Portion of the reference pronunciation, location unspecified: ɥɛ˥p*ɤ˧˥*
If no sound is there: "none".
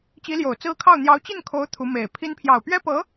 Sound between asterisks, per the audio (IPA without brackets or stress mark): ɤ˧˥